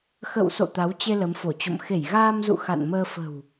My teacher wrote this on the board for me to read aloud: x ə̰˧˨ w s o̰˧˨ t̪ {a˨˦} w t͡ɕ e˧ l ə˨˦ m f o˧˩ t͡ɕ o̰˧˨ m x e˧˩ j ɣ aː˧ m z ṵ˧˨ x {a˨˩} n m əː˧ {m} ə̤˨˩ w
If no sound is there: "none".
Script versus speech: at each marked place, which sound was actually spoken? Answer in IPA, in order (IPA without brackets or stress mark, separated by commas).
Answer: a˨˦, a̰˧˨, f